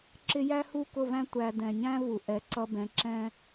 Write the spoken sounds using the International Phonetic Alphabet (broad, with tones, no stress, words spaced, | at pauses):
ǁɪ˦ jæ˦hu˦˨kʊ˦˨væ̃˦ tʷæ˧ dɛ̃˨ɲæ̃˦ vu˨ʔɛ˨˦ǀʌ˧bɛ̃˨˦ ǁɛ̃˦